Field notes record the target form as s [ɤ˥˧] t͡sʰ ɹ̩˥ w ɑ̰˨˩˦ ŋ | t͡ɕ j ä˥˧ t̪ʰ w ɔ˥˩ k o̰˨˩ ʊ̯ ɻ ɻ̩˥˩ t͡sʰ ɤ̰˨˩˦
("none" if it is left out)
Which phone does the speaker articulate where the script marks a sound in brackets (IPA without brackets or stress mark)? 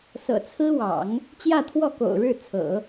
ɤ̰˨˩